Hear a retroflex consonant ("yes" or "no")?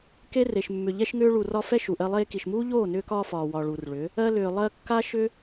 yes